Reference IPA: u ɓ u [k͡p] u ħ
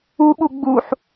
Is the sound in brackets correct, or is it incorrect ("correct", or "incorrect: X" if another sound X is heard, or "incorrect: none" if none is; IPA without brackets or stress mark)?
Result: incorrect: ɡ͡b